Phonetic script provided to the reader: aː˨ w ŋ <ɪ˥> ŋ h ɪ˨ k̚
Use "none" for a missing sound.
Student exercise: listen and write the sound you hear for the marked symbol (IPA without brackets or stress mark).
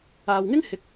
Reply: ɪ˥